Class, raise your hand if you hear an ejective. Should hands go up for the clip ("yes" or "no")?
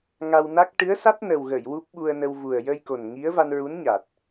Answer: no